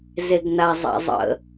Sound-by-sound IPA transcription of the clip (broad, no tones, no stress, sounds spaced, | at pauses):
z e ɡ n a zˤ a̰ zˤ ə̰